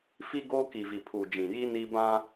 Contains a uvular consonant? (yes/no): no